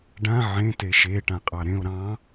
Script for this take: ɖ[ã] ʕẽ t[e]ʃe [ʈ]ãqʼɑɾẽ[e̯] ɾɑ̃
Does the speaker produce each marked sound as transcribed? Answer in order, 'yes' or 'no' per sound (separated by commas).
yes, yes, yes, no